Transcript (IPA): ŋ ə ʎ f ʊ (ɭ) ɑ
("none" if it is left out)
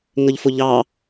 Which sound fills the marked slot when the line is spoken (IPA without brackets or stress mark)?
ʎ